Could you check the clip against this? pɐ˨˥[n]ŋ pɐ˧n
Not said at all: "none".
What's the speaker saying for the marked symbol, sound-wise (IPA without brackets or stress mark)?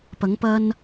none